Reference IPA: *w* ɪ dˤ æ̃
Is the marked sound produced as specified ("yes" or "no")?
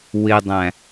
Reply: yes